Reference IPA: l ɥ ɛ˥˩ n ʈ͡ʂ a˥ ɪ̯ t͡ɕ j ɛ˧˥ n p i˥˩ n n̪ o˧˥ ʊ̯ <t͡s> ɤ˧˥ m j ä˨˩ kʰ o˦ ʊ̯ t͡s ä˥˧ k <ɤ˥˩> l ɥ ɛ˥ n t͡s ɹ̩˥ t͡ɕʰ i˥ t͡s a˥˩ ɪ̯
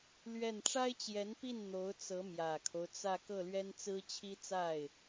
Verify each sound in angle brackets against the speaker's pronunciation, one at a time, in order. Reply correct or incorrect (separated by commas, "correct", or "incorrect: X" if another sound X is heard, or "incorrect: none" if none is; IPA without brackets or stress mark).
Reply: correct, correct